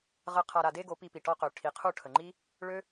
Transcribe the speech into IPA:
ʁ ə˧ qʰ a˨ ɾ a˨ d e˧ ɡ o˨˦ p i˧ p i˨ ʈ ɔ˧ q ø˨ ʈʰ i˨ qʰ u˦˨ ʈʰ ə˨ ŋ͡ǃ i˦ | ɭ ø˦

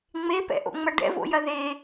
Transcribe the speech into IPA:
ŋ͡m e p ɛ̰ ʔ o̰ ŋ͡m ɐ ɖ ɛ̰ v o̰ j ɐ ð e

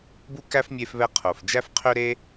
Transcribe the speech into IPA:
b u˥ k æ˥ f mʲ e˦ f β ɛ˦ qʰ o˨ f d͡ʒ æ˥ f qʰ ø˥ ɾ e˥

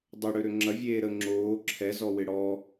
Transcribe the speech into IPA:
dˤ ʏ ɽ ø ɾ ø ŋ͡ǁ ɐ vʲ eː ɾ ə ŋ͡ǁ oː ǁʰ ɛ z ɔ w ɪ ɽ ɔ

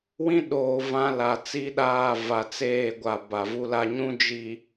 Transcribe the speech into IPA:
w ĩ˦ ɗ oː˨ v ã˦ l a˨ t͡s i˦ ɗ aː˦˨ v a˨ t͡s eː˦˨ ɡʷ a˨ b a˨ v u˦ l a˦ ɲ ũ˦ d͡ʒ iː˨

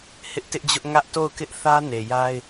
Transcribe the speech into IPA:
h ɪ˦ ʔ t ɪ˦ ʔ d͡ʑ ʊ˦ ʔ ŋ ä˦ ʔ t o˦˨ ʊ̯ k ɪ˦ ʔ θ ä˦ n e˨ j a˦ ɪ̯

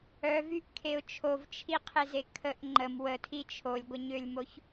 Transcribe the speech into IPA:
œ v y ʔ kʰ e ʊ̯ t͡ʃʰ o v t͡ʃʰ i qʰ e z e kʰ ə ʔ ŋ͡ǃ ə m w ə tʰ i t͡ʃʰ o lʲ ɡʷ ə ɲ ø lʲ m o ç

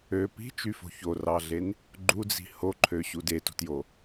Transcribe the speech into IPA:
ø p i̤ t͡ʃ y f o̤ ç o r ɑ ɮ e n | ɡ͡ǃ u d͡z i̤ h o ǃʰ ø ɕ u d e t o̤ t j o

